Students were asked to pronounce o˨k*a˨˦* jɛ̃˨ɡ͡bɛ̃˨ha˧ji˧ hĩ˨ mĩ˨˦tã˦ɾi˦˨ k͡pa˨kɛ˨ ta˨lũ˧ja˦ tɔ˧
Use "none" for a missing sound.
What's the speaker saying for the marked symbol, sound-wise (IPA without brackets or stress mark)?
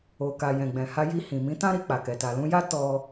a˨